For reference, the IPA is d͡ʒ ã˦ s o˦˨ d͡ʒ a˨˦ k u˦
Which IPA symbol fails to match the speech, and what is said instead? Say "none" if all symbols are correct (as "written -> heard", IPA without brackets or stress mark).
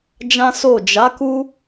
none